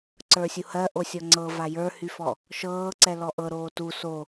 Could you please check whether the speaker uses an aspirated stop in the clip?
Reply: no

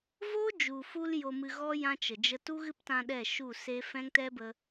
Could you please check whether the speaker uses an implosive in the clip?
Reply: yes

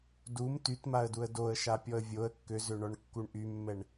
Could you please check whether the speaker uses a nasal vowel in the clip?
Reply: no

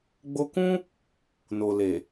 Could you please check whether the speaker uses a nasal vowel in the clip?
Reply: yes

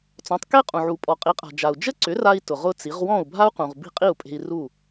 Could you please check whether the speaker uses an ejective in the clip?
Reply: yes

